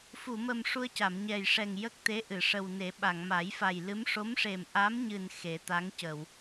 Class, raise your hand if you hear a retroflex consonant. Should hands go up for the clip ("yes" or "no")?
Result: yes